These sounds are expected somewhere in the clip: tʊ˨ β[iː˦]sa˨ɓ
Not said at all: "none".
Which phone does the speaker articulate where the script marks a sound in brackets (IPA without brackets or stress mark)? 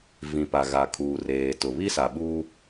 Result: i˦